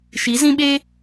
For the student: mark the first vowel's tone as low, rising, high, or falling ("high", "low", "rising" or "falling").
rising